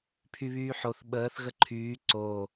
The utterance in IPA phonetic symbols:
pʰ y β yː ħ o θ ɓ əː θ ɣ ə ǃʰ yː ǀ o

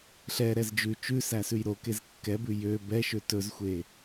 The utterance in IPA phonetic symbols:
ɬ ɛ ɾ ɛ z d͡ʒ ʉ t͡ʃ ʉ s æ s ʉ j ɾ o k e z kː ɛ b ʉ j ø b ɛ ʃ ø t ɵ z xʷ e

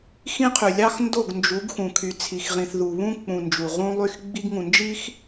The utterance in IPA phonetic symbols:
x ĩ˦ qʰ y˨ lʲ ɑ˦ x n d o˦˨ ɡ n d͡ʒ u˨˦ ɡ x ũ˨ kʰ y˨ t͡sʰ i˨ x ʁ ĩ˨ θ ð u˨ β ũ˦ k͡p ũ˨ n d͡ʒ u˨ ʁ ũ˦ lˠ y˦ x ɡ͡b i˦ ɡ ŋ ũ˨ n d͡ʒ i˦ x

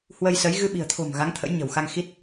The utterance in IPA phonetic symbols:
h w ə˧ j s ə˨˦ j ɣ ɨ˧ ɓ i̤˨˩ ə̯ t̪ʰ o̤˨˩ m ɣ a˨˦ ŋ t̪ʰ ə̰˧˥ j ɲ ə̤˨˩ w x a˧ ŋ x i˦˥ t̚

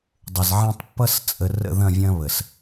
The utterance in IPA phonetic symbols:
dˤ ə˨ z ʕ ɛ̃˦ tˤ pː ʌ˦ s t͡sʼ ə˨ r ə̰˦˨ ð ɐ̃˦˨ vʲ ɐ̃˦ β ə˨ s

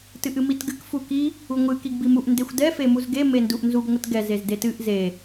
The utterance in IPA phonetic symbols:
t ɨ ʔ ɨ m i t ɡ ɨ k f u k i | u ŋʷ ɨ k i ɡ b i m u ʔ n d e xʷ d ɛ f e m u z ɡ e m e n d u ʔ n z u ɡ ŋʷ ɨ t ɡ ɛ z e z d e t ɨ ʔ z e

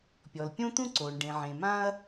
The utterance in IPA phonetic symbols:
pʲ ɔ˩ l pʲ õ˥ t̪ ũ˥ ǀ oː˩ ɳ ɖ ẽ˩ ʕ ẽ˩ m ã˥ ɐ̯

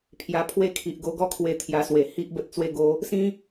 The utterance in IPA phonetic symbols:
pʰ j a˧ pʰ w e˦ kʰ i˨ ʔ ɡ o˧ ɡ ɔ˦ kʰ w e˧ t̪ʰ j a˧ s w e˨˩ h i˦ ʔ b ə˦ t̚ t͡s w e˥˧ ɡ o˦ | s ĩ˦

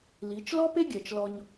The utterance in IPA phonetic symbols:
l i˨˦ t͡ʃ l ɔ˦ p e˦ ɡʲ ɜ˨ t͡ʃ l ɔ˧ ɲ

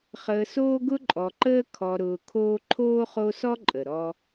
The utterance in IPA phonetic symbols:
χ əː˨ s oː˦ ɡ ʊ˦ ǃʼ ɔ˨ ǃ əː˦ kʰ ɔ˨ ɾ ʊː˨ kʰ oː˦ ǃʰ oː˥ χ o˦ s ɔ˥ ǃʼ ə˩ ɾ ɔ˦

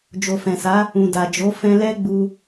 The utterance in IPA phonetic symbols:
d͡ʒ o˨ f ɛ̃˨ s a˨˦ | ũ˨ d a˨ d͡ʒ o˨˦ f ɛ̃˧ l ɛ˦ ɡ͡b u˧

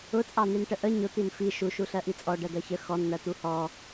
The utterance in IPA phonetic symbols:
ʊ t͡sʼ ɑ n̪ i n ʈ ə ʔ ə ɲ ʊ t̪ i n f i ʃ u ʃ u ɬ ɜ ʔ i t͡sʼ ɔ ɖ ɜ d̪ ɜ ç ə x ɔ n n̪ ɜ t̪ u h ɔ

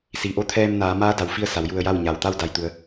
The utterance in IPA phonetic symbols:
s i˩ ʔ o˥˨ t̪ʰ ɛː˧ m n aː˩˧ m aː˧˥ d a˩ w f i˧ ə̯ s a˩˧ w j u˧ ə̯ j a˥˨ w ɲ a˩ w t̪ a˥˨ w d a˧˩ j t̪ u˩˧ ə̯

